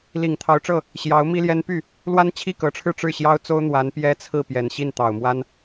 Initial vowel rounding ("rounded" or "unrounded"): unrounded